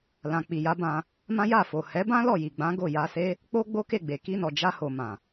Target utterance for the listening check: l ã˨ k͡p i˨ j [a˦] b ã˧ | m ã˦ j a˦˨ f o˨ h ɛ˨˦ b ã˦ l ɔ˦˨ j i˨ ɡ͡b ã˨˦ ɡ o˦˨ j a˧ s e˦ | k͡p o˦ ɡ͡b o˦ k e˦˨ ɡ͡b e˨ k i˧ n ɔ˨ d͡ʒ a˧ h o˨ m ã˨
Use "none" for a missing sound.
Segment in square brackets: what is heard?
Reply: a˨˦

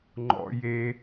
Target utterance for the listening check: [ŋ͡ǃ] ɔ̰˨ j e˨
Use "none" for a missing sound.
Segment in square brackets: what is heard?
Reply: ŋ͡ǃ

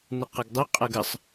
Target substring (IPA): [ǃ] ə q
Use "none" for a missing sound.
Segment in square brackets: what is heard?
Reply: n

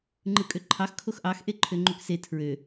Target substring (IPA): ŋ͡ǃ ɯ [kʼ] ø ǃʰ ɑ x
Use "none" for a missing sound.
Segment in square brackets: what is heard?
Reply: kʼ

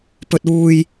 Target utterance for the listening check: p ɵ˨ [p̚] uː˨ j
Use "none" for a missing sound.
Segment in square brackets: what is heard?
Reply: t̚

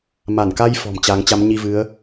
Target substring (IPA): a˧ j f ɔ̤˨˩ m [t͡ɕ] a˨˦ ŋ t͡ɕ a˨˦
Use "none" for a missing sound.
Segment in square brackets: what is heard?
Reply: t͡ɕ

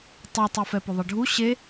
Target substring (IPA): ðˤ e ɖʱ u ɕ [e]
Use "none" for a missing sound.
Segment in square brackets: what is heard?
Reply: e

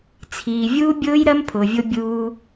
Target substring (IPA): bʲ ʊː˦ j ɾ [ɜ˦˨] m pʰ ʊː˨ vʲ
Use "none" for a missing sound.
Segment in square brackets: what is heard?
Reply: ɜ˦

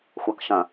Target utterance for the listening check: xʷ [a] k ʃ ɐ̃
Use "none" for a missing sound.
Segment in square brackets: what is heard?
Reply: a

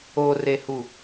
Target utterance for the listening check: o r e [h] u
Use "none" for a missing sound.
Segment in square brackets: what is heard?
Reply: h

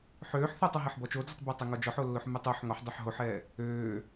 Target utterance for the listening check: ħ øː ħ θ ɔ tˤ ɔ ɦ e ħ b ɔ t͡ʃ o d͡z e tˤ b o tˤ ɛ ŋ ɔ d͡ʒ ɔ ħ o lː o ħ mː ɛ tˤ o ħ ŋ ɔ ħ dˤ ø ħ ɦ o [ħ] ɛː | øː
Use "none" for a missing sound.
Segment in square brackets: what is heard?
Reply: ħ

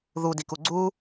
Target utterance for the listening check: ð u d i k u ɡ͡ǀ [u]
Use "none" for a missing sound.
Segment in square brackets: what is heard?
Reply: u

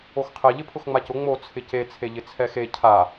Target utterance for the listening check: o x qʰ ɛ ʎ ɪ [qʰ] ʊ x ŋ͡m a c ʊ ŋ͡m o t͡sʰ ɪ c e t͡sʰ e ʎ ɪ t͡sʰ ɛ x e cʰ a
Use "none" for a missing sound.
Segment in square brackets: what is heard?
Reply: pʰ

